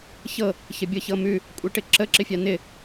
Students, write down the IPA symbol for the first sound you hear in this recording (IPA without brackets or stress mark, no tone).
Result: ç